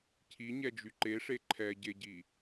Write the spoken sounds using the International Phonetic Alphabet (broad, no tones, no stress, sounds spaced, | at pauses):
cʰ i ɲ ɛ d͡ʒ y ǃ e ʂ e ǃʰ ɛ ɟ e ɟ i